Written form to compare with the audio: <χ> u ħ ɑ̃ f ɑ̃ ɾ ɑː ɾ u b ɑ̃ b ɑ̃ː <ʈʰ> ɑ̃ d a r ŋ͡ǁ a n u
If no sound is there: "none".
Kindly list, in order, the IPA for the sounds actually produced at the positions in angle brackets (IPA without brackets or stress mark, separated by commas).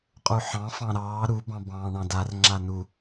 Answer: qʼ, ɳ